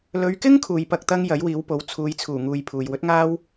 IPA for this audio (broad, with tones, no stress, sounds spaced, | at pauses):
l ɵ˨˧ ɥ k ɪ˥ ŋ kʰ uː˨ j p ɐ˧ k̚ t̪ ɐ˥ ŋ j ɐ˨˥ j w iː˨˥ w p o˨˥ w t͡sʰ uː˨˧ j t͡sʰ uː˨˩ ŋ uː˧ j pʰ uː˨ j w ɵ˨˥ t̚ ŋ aː˥ w